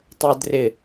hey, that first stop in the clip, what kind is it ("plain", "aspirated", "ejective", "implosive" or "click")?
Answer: plain